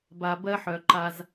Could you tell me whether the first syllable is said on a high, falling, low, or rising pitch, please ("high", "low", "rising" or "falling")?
low